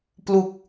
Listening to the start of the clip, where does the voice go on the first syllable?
low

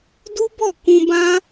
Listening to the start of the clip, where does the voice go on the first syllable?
high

